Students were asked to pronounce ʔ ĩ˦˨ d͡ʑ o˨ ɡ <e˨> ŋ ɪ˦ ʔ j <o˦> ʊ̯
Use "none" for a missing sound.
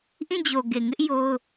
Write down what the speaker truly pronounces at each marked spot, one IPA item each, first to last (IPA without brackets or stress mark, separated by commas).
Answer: e˨, o˦